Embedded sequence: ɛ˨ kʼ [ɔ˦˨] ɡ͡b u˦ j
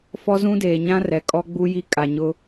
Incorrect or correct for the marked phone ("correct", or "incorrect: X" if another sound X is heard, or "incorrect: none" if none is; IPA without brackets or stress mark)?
incorrect: ɔ˦